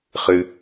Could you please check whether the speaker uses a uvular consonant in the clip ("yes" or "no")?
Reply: yes